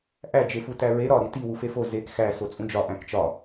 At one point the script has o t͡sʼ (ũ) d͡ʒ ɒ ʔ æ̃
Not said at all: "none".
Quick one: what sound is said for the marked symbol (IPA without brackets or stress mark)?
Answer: ũ